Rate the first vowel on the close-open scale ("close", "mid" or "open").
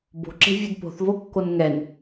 mid